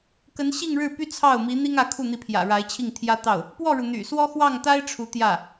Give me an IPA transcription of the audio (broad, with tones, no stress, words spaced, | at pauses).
kə˧˥nɕi˥˧ŋɻɻ̩˥˩ py˥ t͡sʰɑ˥˩ʊ̯mi˧˥ n̪i˥ŋä˧˥kʰu˥˩ n̪i˧˥pʰjä̰˨˩ ɻa˧˥ɪ̯t͡ɕʰi˥˩ŋt̪ʰjä˥t̪ɑ˥˩ʊ̯ | pwɔ˥˩ɻu˩ n̪y̰˨˩swɔ˥ xwɑ˥˩ŋt̪a˥ɪ̯ ʈ͡ʂʰu˧˥t̪jä˥˩